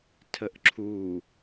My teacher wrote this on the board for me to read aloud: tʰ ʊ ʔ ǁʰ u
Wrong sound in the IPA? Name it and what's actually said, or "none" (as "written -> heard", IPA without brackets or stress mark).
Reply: ʊ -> ə